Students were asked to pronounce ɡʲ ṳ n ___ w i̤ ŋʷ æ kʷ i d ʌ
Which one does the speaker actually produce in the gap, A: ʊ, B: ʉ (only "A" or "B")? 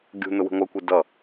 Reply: A